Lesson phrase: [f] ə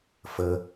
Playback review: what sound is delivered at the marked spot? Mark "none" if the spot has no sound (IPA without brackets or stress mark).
f